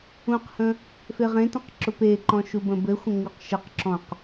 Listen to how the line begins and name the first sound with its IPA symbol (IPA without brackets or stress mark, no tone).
ũ